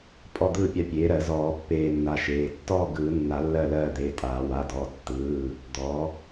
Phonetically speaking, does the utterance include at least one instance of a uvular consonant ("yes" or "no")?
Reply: no